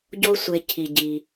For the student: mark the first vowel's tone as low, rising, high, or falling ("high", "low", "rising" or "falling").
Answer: high